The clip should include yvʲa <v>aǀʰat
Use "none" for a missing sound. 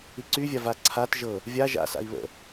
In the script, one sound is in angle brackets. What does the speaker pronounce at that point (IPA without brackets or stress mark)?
v